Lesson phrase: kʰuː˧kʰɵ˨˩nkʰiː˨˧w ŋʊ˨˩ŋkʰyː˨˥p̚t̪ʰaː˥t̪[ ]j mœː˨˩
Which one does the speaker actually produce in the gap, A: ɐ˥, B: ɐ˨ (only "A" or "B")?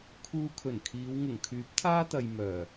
B